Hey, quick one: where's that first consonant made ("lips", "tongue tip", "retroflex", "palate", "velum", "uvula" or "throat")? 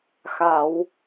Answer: velum